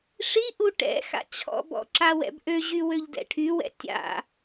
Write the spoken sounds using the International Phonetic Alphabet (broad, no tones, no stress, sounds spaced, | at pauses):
ʂ i ʔ u ʈ ɛ̰ x a̰ t͡ɕʰ ɔ̰ b ɔ̰ ǁ a w ɛ̰ b ʔ ø ʑ y w ø ʎ d ɛ̰ ʈʰ y w ɛ̰ tʲ a̰